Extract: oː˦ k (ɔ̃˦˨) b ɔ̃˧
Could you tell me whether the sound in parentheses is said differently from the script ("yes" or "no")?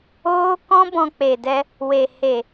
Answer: yes